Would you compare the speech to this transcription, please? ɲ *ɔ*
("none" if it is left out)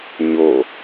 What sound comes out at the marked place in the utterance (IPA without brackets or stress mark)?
o